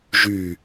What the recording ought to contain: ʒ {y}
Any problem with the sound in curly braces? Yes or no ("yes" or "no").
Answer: no